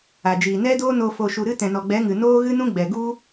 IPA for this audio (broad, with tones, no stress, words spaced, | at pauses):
a˨d͡ʒiː˨ nɛ˦doː˦no˧ fo˨ʃu˨ɾɨ˧ tɛ̃˨nɔ˨ɡ͡bɛ˨˦ŋɨ˨ noː˦ɣɨ˦nũ˦ ɡ͡bɛ˨ɡu˦